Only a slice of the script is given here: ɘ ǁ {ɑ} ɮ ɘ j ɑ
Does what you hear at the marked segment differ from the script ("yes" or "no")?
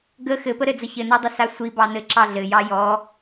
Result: no